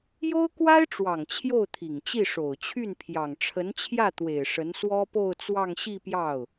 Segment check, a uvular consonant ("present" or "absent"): absent